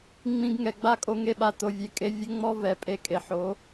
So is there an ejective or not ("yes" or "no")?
yes